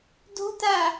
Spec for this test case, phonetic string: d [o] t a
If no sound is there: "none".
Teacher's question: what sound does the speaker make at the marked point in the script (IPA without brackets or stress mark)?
o̤